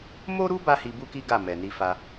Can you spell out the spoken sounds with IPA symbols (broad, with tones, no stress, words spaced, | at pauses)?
mo˦ɾu˦ ba˦hi˧bu˦ki˦ ɡa˦˨mɛ˨ ni˧fa˧